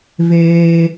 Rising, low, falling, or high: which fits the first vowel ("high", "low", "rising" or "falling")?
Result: high